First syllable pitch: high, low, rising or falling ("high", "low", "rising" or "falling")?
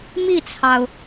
falling